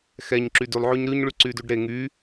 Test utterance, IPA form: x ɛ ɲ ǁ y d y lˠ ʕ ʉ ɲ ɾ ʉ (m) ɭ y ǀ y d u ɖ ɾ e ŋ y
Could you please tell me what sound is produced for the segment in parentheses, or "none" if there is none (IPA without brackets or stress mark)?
ɲ